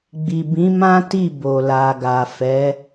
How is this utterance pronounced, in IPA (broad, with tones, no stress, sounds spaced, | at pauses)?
ɡ͡b i˨ b ĩ˨˦ m ã˦ t i˦˨ b o˨ l a˨ ɡ a˨ f ɛ˨˦